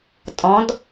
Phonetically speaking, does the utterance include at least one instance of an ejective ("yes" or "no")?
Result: yes